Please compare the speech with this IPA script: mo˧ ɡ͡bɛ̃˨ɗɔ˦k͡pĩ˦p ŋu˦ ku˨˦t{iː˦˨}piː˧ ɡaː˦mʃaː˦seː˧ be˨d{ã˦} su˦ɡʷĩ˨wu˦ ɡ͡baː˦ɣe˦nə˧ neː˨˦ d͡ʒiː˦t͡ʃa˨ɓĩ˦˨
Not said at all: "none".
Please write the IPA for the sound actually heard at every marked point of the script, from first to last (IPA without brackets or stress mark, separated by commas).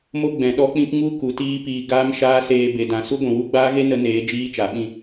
iː˦, ã˨